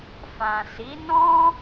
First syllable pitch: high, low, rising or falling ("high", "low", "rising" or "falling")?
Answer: low